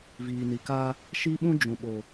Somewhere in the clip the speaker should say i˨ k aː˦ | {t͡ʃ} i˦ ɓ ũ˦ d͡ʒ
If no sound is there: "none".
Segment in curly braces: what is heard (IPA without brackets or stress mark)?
ʃ